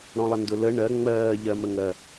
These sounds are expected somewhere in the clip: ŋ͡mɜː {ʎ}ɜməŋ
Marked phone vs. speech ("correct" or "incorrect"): correct